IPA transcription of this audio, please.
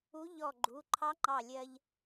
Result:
u˧˥ ʎ ɔ˧˩ ɡ͡ǃ u˩˧˩ ǃʰ ɑ˧˥ ŋ͡ǃ ɑ˧˩ lʲ ɜ˧ ʎ

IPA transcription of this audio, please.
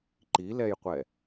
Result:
ǃ i l ɛ j qʷ ɛ

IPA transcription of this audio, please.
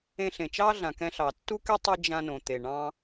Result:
ẽ˧ ɬ ẽ˩ t͡ʃ ɑ˥ ɮ ã˩ k ɛ̃˧ ɬ ɑ˩ tː u˥ k e˥ tˤ ɨ˧ d͡ʒ ã˧ n õ˩ t̪ e˩ ɳ ɑ̃˧

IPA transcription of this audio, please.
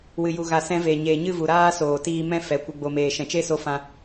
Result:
w ɨ˨ j u˨ ɣ a˨ s ɛ̃˧ v e˨ ɲ eː˨ ɲ ɨ˦˨ v u˨ ɾ aː˧ s oː˨ t iː˧ m ɛ̃˦ f ɛ˨ kʷ ɨ˨ ɡ͡b o˨ m eː˨ ʃ ɛ̃˨ t͡ʃ e˦ s o˧ f ã˧

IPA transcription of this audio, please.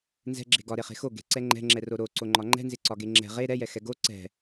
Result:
n z ɛ̤ ɡ͡ǁ e̤ ɡ ɒ ɾ e χ e̤ x o ɡ e̤ ǀ ɛ ŋ͡ǃ ɛ̤ ŋ͡ǁ ɛ r o ɾ o ǀ o ŋ͡ǃ ɒ ŋ͡ǃ ɛ̤ n z ɪ ǀ ɒ ɡ e ŋ͡ǁ ɛ̤ ʁ e ɾ ɛ j ɛ x ɛ ɡ o ǀ ɛ̤

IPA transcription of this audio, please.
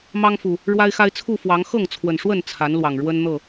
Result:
m ɑ˦ ŋ f u˨˩ | ɻ w a˦ ɪ̯ x a˦ ɪ̯ t͡sʰ u˥˨ f w ɑ˨˦ ŋ x ɤ˥˨ ŋ t͡sʰ w ə˨˩ n ʂ w ə˥˨ n t͡sʰ a˨˦ n l w ɑ˨˩ ŋ ɻ w ə˦ n n̪ ɤ˥˨

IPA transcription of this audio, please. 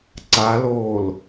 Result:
ǀ a l oː l

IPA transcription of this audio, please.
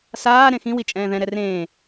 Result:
s aː ɾ ẽ x ĩ w i t͡ʃʼ ɛ̃ː ð ɛ̃ ɾ ɛ r ẽː

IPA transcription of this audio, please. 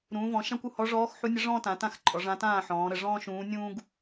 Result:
ɾ ũː˩˧ v ɔ̃˩˧ ʃ ã˥ kʷ u˦˨ h ɔ˧˥ ʐ ɔː˧˥ x ħ u˧˥ nʲ ə˧˥ ʐ ɔ̃ː˥ t ã˩˧ t ã˦˨ x ǃʼ ɔ˩˧ ʐ ã˧˥ t ãː˦˨ ħ ɔ̃ː˩˧ ɾ ə˦˨ ʐ ɔ̃ː˥ ʃ ũː˧˥ nʲ ũː˥ ɡ

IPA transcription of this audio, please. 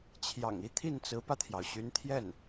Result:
t͡ɕʰ j ɑ̰˨˩ ŋ i˥˧ t̪ʰ i˥˩ n t͡s ɹ̩˧˥ p ä˧ t̪ʰ j ɑ˩ ʊ̯ ɕ y˧˥ n t̪ʰ j ɛ˥˩ n

